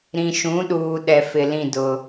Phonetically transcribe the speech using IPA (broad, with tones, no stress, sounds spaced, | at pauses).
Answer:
ɾ ĩ˨ ʃ ũ˨˦ ɗ uː˨ ɗ ɛ˨ f ɪ˨ l ĩ˦˨ d ʊ˨